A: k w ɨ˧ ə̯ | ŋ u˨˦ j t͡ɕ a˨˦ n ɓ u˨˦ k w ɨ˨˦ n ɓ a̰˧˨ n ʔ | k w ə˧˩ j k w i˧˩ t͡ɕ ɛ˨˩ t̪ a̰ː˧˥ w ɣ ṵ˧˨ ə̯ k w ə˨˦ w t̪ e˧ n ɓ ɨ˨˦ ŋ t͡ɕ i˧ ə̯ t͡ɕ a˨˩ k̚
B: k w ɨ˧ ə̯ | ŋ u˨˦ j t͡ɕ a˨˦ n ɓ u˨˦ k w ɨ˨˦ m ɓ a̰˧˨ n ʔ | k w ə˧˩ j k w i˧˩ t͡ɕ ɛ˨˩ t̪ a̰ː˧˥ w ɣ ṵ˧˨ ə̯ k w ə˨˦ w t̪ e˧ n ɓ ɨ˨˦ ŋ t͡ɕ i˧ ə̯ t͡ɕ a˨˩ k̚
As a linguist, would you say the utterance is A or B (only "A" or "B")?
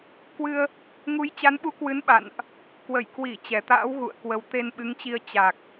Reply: A